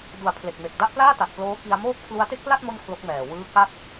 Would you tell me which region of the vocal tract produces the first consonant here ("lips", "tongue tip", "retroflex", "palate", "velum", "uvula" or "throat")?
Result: tongue tip